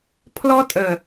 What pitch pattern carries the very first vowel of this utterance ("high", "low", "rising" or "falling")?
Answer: high